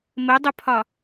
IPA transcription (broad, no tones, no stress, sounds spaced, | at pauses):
m ə dˤ ʊ pʰ ɒ